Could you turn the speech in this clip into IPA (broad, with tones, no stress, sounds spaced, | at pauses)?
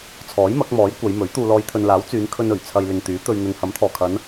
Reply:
t͡sʰ ɔː˨˥ j m ɐ˨˥ k̚ m ɔː˨˥ j kʷ ɐ˨˧ j m ɵ˨˥ ɥ t̪ uː˨ l ɔː˨˧ j t̪ʰ ɵ˨ n l aː˨˥ w t͡s yː˨˧ n kʰ ɵ˧ n ɵ˨˩ ɥ t͡sʰ ɐ˧ j l ɪ˨ ŋ t̪ yː˨˥ t̪ ɵ˧ ɥ n̪ ɵ˨ n h ɐ˨˥ m t̪ʰ ɔː˨˩ kʰ ɐ˨˧ n